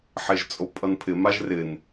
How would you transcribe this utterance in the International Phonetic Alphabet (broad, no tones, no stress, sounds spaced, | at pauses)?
ħ e ʒ t͡sʼ o pʼ ʌ n pʰ ɪ m a ʒ r ɪ n